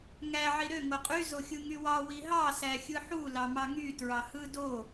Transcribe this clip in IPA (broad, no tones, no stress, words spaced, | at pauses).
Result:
ŋæ ʕiɾø ŋoqʼy zoxʲɯŋywɑ wiɦɑ sæxʲɯħu lɑmɑŋy tɹɑhɯ do